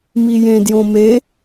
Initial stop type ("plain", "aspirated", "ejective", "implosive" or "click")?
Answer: plain